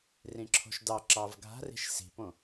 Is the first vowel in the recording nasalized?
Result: yes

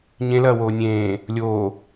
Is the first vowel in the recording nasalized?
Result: yes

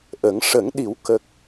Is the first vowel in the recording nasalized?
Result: no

